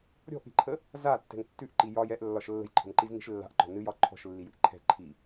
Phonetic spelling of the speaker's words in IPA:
ɾʲ ɔ̤ ʔ ɾ i̤ ǃʰ ə | z a tː ɛ̤ ŋ tː ʉ ʔ ǃ i j ɒ j ɛ ʔ lː ɒ ʃ lː ə̤ j ǃʰ ə̤ n ǃ i z n i̤ ʃ lː a̤ ʔ ǃ ɔ̤ n ɨ j ɒ ǃʰ ɔ̤ ʃ lː i j ɨ ʔ ǃʰ ɛ̤ ǃʰ i

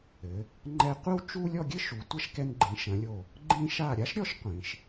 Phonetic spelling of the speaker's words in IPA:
ɘ˩˧ | ŋ͡ǃ ɛ˧˩ qʷ ɘ˥˧ w t͡ʃ u˥ lʲ ɔ˥˧ ɡʲ ɘ˥ ʃ u˩˧ tʷ ɐ˥ ʃ k ɛ˧ n ɡ͡ǃ ĩ˩˧ ʃ ɐ̃˩˧ lʲ o˧˩ | ɡ͡ǃ ĩ˧ ʃ a˧˩ ɾʲ a˥ ʃ ɾʲ ɔ˥ ʃ qʷ ĩ˩˧ ʃ

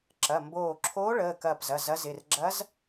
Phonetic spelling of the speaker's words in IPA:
ǁ ɐ˩˧˩ m b oː˧˩ ǁʰ oː˧˥ ɭ əː˩˧˩ k ɐː˧˩ p z ɐ˩˧˩ z ɐ˧˥ z ɪ˩˧˩ r ɡ͡ǁ ɐ˧˥ z

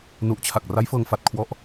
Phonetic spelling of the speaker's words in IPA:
n u˨˩ ʔ t͡ɕʰ a˨˩ k̚ r a˦˥ j f ɤː˧ ŋ f a˨˩ t̚ kʰ w ɔ˦˥ ʔ

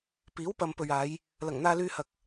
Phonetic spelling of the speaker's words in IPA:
p iː˨˥ w p ɐ˨ m p ɵ˨ ɥ aː˨˧ j | l ɐ˨˩ ŋ n̪ aː˨ l yː˨ h ɐ˨ k̚

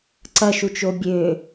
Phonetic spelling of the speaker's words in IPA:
ǀ ɐ ʃ u t͡ʃ o bʲ ø

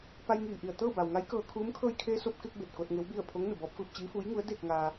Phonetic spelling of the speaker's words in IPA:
p a˧ j ŋ iː˧˩ ʔ i˧˩ ə̯ t̪ ɤː˥˨ b a˩ w ŋ a˧˥ j k ɤː˧ kʰ uː˧˥ m kʰ ɤː˧ j kʰ eː˧ s o˧ p̚ k e˧ k̚ b e˧˩ t̚ k o˧ t̚ ŋ e˧˥ w b i˥˨ ə̯ pʰ o˧˥ ŋ n u˩ b ɔː˧˥ p̚ f ɯː˧ p̚ t͡ɕ iː˧˥ f uː˧˥ j ŋ u˧˥ ə̯ d e˥˨ k̚ ŋ aː˧

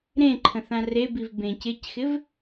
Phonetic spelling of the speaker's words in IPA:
ɾ ẽ ǃʰ ə̃ θ ã r e b i v b ẽ c ɪ c x ɪ v

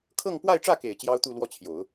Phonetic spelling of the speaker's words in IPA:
kʰ ɤ˥˧ ŋ p w a˥˧ ɪ̯ ʈ͡ʂ ä˥˩ k e˨˩ ɪ̯ t͡ɕ j ɑ˥ ʊ̯ t̪ u˥˧ l w ɔ˥˩ t͡ɕʰ j o˨˩˦ ʊ̯

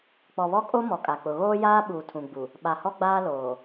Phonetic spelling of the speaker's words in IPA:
k͡p ɔ˨ β ɔ˦ kʼ o˦ m ɔ˨ kʼ a˨ k͡p ʊ˨ ɣ oː˦ j aː˦ ɓ uː˨ tʰ ũ˨ ɡ͡b u˨ | ɓ a˨ h ɔ˦ ɡ͡b aː˦ l oː˨

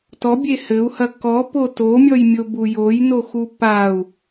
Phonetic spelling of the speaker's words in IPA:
t ɔ bʲ e h ɘ u̯ h ɐ k ɔ p o t o mʲ ɔ j mʲ o b u j o j n o x u p a u̯

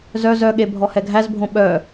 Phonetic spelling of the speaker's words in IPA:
z œ z œ ɠ e bʱ ɔ h ɛ ɡʱ æ z bʱ õ ɓ œ

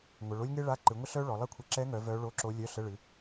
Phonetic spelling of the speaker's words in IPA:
ŋʷ ə˩˧ ɭ o˥ lʲ ŋ e˥ ɭ a˧˥˧ ǃ ɨ˩˧ ŋʷ ə˥ ɬ œ˥ ɭ ɔ˩˧ lˠ ɛ˥ kʷʰ ə˧˥˧ ǁ ɛ˧˥ ŋ œ˩˧ v œ˧˥ ɭ o˧˥˧ ǁ o˧˥ lʲ œ˧˥˧ ɬ ə˧˥˧ ɭ ɨ˩˧

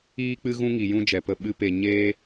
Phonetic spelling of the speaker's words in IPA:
iː˦ k͡p ɨ˦ ɣ ũ˦ ŋ i˨ j ũ˦ d͡ʒ ɛ˨ p ə˧ ɓ ɨ˦ p e˧ ɲ eː˦

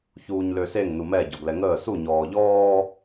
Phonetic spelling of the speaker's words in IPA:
ç uː ɲ l ø s e ŋ n u m ɛ ɟ ɔ ɡ l ɛ ŋ əː s u ɲ ɔː ʎ ɔː

